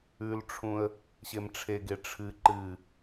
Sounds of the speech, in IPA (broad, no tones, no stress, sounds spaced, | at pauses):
ʉ l ʈ͡ʂʰ ũ ə̯ | ɕ e m ʈ͡ʂʰ e ɡ e ʈ͡ʂʰ ɨ ǃ ɨ